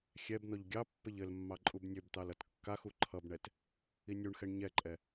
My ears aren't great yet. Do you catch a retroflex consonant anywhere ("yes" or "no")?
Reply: yes